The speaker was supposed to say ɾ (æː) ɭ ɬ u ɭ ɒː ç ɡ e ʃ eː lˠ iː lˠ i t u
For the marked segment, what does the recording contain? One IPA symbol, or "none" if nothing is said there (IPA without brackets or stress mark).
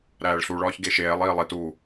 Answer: æː